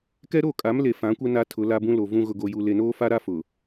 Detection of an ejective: present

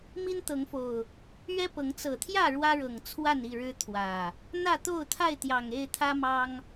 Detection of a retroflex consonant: present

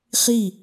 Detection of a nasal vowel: absent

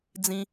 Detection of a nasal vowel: present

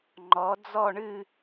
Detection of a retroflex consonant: present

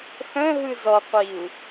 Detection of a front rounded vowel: present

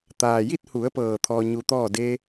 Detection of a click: absent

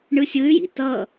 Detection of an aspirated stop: absent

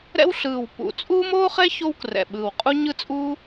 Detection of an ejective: present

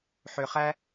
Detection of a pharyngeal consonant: present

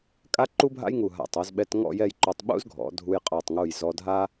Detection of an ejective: present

